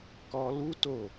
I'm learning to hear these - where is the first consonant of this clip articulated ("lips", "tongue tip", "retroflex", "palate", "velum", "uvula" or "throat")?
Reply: velum